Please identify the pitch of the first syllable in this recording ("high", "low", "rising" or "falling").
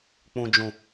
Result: low